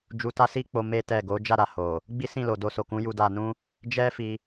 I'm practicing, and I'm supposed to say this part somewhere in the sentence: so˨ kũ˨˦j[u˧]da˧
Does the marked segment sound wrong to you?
no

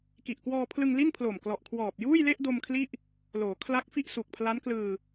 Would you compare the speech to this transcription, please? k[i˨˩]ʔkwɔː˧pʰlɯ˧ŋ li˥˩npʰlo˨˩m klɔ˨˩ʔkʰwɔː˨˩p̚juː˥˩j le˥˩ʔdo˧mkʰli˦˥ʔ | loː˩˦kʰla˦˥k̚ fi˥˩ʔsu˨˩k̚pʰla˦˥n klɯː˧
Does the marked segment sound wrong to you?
no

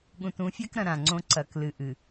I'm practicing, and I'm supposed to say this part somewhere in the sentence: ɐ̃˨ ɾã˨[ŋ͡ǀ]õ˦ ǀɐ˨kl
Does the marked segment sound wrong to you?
no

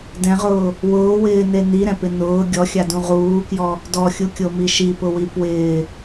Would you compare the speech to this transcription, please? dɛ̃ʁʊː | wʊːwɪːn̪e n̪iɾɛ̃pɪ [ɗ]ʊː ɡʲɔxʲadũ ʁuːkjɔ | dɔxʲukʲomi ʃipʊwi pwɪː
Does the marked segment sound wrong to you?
yes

